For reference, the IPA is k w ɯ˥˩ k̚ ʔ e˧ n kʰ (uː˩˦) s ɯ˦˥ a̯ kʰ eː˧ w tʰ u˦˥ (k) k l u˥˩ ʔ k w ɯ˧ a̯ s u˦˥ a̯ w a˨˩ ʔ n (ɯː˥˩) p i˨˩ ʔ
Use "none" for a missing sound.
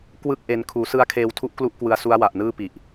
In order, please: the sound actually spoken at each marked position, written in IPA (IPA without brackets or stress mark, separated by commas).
uː˩˦, ʔ, ɯː˥˩